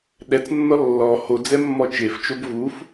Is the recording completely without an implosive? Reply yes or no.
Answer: no